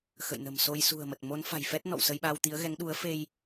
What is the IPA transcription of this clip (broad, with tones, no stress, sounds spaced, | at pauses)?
x ə̰˧˨ j n ə̤˨˩ m s o˧ j s ṳ˨˩ ə̯ m ə˨˩ t̚ m o˨˦ n f a̤˨˩ j f ɛ˦˥ t̚ n ɔ̰˧˨ w s ə˧ j ɓ a˧ w t̪ i˨˦ ə̯ ɣ ɛ˨˦ ŋ ɗ u˨˦ ə̯ f e˧ j